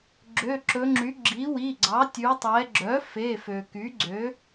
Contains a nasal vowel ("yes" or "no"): no